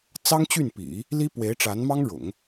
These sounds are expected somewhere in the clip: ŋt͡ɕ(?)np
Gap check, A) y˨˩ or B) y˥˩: B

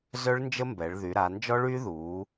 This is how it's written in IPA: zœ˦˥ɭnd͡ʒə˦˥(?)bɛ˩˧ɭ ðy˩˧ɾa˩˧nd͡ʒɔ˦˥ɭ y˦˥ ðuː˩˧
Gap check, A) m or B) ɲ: A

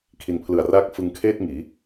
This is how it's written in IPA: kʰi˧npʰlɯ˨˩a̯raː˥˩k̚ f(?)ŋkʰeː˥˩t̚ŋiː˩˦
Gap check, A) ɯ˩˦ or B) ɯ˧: B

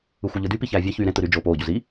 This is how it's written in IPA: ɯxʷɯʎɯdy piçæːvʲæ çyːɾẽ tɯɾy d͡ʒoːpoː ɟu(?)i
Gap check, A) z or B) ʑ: A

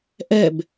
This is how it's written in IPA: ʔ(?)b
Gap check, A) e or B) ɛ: B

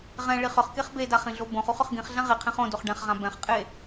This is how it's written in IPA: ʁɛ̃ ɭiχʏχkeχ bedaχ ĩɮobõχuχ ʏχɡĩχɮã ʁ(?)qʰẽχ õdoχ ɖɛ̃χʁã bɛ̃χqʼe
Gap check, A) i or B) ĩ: A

